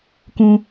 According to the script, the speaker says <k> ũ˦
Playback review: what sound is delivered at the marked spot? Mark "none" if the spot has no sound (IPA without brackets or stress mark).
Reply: k